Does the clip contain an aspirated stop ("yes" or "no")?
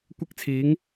yes